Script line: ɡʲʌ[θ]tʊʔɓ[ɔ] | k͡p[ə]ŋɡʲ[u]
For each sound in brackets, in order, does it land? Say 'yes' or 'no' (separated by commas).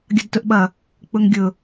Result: no, no, no, no